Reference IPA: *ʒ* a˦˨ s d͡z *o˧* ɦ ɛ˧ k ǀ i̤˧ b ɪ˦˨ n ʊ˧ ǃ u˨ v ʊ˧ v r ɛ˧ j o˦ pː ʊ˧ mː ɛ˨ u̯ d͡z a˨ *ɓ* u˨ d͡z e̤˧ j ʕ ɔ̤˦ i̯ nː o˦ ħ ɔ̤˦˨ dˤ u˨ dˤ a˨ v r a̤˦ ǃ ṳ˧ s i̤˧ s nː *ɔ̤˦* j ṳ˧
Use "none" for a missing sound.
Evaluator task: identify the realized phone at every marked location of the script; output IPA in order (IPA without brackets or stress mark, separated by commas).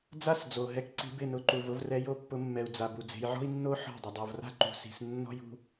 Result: d͡z, o˨, b, ɔ̤˦